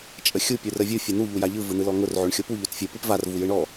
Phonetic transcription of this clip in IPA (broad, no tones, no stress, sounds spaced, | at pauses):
t͡ʃʼ ə xʲ u pʲ u r ə vʲ u fʲ ɯ n̪ u ʎ u j a ʎ ɯ v ɯ n̪ ɯ l ɔ ŋ ʊ r ʕ o ɳ xʲ o p u ʎ o t fʲ ɯ p ɯ p v a r v u j ɯ ɳ ɔ